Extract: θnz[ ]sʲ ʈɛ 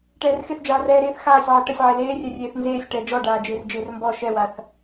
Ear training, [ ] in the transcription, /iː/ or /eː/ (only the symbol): eː